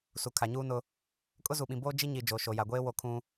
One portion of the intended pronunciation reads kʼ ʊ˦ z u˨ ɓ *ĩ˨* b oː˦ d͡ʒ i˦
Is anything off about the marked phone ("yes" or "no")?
no